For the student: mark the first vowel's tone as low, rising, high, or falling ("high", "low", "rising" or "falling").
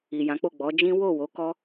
low